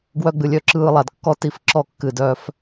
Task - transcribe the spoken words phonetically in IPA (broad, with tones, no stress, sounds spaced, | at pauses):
ɡ w œ˧ ɡ͡b ɨ˨ lʲ œ˧ ǁ ɯː˧ lˠ a˨ d kː ɔ˦ t i˧ f ǁ ɔ˦˨ kː ɨ˧ d œː˦ f